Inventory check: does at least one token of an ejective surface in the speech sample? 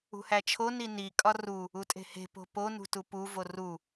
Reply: yes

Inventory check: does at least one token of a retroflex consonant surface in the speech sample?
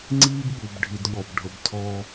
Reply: yes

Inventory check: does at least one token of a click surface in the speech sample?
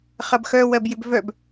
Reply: no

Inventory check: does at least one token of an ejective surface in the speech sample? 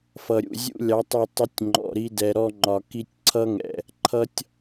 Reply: no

